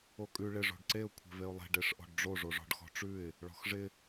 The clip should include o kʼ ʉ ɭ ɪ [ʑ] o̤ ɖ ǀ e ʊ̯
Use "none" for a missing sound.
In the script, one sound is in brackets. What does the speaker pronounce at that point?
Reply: ʐ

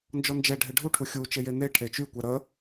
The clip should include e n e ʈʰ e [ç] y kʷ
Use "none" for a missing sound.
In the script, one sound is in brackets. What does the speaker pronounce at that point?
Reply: t͡ʃ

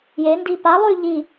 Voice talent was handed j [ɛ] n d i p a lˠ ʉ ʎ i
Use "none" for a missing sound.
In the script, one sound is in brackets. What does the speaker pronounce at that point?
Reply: e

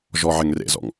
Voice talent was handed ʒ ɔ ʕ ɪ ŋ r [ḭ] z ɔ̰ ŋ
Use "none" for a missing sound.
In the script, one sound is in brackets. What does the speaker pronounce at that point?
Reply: ḛ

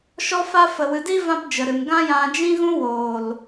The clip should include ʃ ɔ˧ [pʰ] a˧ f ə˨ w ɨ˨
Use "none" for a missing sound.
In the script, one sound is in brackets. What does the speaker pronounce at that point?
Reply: f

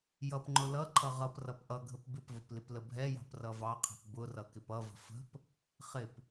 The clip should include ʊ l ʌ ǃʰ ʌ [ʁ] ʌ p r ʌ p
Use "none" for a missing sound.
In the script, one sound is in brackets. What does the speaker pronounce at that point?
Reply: ʁ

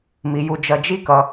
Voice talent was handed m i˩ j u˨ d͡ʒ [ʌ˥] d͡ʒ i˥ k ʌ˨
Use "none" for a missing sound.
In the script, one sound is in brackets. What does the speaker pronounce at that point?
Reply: ʌ˨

